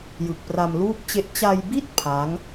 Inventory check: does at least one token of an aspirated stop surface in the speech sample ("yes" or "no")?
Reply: yes